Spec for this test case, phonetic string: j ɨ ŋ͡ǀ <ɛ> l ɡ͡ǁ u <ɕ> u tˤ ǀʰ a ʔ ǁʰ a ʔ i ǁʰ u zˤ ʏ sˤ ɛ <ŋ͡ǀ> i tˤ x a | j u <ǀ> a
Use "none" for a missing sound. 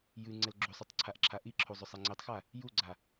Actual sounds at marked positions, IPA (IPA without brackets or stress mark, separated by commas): ɛ, sˤ, ŋ͡ǀ, ɡ͡ǀ